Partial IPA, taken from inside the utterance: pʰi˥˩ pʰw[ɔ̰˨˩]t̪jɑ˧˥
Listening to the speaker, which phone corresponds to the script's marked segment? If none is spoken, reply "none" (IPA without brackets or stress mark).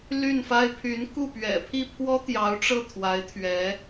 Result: ɔ˥